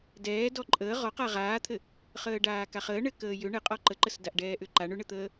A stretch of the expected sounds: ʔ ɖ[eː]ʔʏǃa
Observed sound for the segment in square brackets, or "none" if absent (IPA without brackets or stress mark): ɛː